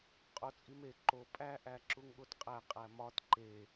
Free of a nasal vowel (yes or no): yes